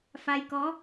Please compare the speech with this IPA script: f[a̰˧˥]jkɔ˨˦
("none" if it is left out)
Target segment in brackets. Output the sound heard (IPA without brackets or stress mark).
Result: a˧